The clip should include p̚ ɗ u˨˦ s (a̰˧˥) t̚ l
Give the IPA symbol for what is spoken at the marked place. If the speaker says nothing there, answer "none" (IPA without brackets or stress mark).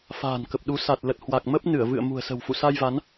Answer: a˨˩